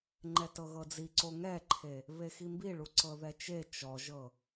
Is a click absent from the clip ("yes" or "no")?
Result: no